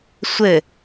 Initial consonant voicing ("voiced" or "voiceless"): voiceless